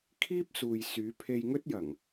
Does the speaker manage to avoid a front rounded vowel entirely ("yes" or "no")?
no